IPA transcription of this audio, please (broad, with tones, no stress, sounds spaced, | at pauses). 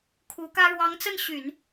kʰ u˧˥ k ä˥ ɻ w ɑ˧˥ ŋ t͡s ə˥˩ n ɕ y˨˩˦ n